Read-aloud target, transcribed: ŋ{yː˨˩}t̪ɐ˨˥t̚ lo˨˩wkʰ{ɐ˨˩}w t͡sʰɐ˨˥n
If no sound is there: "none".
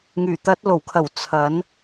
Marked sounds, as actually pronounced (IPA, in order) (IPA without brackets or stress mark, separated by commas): yː˨˩, ɐ˨˩